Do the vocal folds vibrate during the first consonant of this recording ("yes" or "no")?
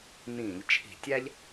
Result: yes